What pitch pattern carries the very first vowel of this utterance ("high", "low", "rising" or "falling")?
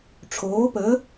rising